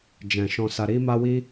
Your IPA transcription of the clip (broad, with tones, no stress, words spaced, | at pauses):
d͡ʒɛ̃˨ ʃɔ̃˨sa˨ ɾi˧ma˧wi˧